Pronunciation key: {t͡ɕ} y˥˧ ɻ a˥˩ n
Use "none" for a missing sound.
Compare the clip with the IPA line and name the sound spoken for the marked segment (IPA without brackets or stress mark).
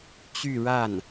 t͡ɕ